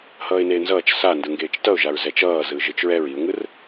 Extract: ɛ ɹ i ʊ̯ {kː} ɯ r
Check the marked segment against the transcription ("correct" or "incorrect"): incorrect